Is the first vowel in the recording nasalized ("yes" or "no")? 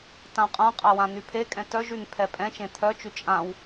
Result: yes